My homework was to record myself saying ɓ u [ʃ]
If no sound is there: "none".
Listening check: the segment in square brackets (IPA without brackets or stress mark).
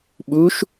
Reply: ʃ